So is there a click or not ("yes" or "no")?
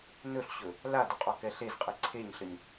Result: yes